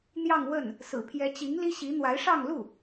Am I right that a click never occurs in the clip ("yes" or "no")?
yes